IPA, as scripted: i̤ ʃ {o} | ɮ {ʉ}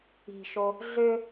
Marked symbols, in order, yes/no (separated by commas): yes, no